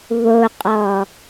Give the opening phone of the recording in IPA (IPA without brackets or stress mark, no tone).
β